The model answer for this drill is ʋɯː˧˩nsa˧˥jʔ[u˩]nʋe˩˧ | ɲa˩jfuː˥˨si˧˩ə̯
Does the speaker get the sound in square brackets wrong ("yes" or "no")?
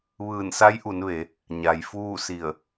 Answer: yes